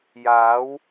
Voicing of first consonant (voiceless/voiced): voiced